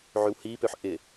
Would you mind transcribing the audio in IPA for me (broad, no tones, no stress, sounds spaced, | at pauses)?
ʕ y w h i p ø ħ ʔ ɪ